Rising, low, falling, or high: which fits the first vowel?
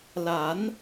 rising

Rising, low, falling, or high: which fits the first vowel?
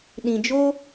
low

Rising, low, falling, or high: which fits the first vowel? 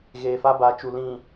low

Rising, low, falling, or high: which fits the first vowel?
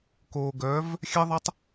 low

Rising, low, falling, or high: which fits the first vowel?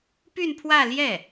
falling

